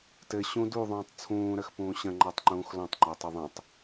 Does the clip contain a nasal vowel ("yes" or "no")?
yes